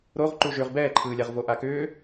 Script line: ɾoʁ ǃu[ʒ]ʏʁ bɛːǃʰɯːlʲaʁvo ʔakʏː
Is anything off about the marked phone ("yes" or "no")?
no